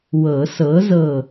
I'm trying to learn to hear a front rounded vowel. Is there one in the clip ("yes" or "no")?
no